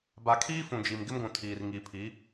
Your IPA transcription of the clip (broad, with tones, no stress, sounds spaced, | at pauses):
b a˨ kʰ iː˦ f ũ˨ d͡ʒ i˨ m ɡ ɪ˦ m ɡʷ ũ˨ tʰ iː˨ r ŋ i˨ pʰ i˨˦